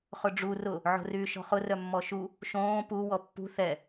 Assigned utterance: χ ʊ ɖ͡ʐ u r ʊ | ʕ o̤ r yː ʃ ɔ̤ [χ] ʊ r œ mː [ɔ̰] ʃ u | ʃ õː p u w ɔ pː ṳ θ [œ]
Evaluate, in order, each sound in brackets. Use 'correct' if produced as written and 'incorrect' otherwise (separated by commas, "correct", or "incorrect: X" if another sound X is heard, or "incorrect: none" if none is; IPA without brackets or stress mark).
correct, incorrect: ɔ, incorrect: ɛ